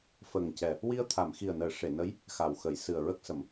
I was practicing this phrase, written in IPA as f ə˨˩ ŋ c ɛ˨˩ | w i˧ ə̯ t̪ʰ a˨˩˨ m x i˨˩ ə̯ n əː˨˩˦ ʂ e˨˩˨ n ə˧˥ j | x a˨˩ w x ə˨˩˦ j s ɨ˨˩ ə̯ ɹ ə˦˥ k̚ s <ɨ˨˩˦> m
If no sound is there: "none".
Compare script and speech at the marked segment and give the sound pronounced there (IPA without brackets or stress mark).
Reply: ə˨˩˦